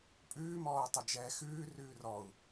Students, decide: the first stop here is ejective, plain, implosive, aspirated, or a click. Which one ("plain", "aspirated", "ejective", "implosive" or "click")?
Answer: ejective